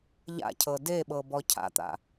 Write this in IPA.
ʎ a̰ cʰ ɤ d e ɓ ɤ b ɔ cʰ a̰ t̪ a̰

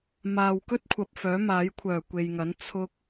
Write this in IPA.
m aː˨ w k ɵ˥ t̚ kʷʰ ɐ˨ p̚ f œː˨˥ m aː˨˥ j kʷʰ œː˨˩ kʷ e˨ j ŋ ɐ˨˥ n t͡sʰ ʊ˧ k̚

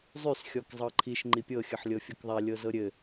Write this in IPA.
zˤ y s xʲ ɔ k zˤ ɤ ǃʰ i ʃ ŋ͡ǃ i pʲ ɤ xʲ ɤ ħ lʲ ɤ fʲ ɤ k ðˤ æ lʲ ɤ z ɤ ɾʲ ɘ

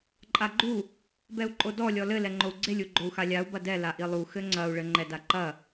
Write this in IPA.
ǃʼ a ɡ͡ǃ u | b ɛ u̯ ǃʼ o d ɔ lʲ ɔ l ɘ l ɛ ŋ͡ǃ o u̯ ɡ͡ǀ e lʲ u ɡ͡ǃ o u̯ x a lʲ a u̯ b ɐ d ɛ l a ʔ i lˠ u x ɘ ŋ͡ǀ ɐ u̯ ɭ ɘ ŋ͡ǃ ɛ d a ǃ ɐ

